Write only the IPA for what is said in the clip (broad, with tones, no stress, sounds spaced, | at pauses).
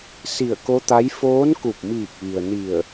s i˧˩ ə̯ k o˧˥ t̪ a˧˥ j f oː˧˥ n k u˧˩ p̚ m iː˧˩ k̚ ʋ i˩ ə̯ n i˧˩ ə̯